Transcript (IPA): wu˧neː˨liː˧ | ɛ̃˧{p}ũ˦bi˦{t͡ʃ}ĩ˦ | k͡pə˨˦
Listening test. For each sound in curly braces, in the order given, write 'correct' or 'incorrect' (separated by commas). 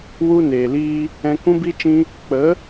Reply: incorrect, correct